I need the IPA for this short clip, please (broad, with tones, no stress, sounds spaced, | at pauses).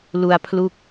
l u˧ a̯ pʰ l u˦˥ k̚